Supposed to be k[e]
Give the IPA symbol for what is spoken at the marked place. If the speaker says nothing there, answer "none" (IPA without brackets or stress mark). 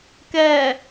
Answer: ɛ